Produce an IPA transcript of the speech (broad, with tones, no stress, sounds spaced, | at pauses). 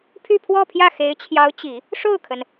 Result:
pʰ y˥˧ pʰ w ɔ˥˧ pʰ j ä˥˩ x e˧˥ ɪ̯ t͡ɕʰ j ɑ˧˥ ʊ̯ t͡ɕ i˨˩˦ | ʂ o˥˩ ʊ̯ kʰ ə˩ n